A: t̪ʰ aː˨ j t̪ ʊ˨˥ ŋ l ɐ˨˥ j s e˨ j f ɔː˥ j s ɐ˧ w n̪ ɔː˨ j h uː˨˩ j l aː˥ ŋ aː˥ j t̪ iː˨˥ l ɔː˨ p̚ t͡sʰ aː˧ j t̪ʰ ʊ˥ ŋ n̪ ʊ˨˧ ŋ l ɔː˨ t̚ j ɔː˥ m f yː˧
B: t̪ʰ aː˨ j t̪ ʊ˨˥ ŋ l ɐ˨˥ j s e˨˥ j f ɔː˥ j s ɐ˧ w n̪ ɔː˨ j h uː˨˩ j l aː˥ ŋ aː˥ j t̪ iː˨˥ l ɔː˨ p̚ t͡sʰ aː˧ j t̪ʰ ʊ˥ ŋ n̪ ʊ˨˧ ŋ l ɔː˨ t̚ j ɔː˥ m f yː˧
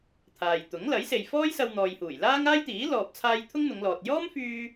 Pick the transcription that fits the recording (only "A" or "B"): A